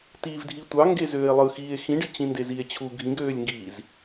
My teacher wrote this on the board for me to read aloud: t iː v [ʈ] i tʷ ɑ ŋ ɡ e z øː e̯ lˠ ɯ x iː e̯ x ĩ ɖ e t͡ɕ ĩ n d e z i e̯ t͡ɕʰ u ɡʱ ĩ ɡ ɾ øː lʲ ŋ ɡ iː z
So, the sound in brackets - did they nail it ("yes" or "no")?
no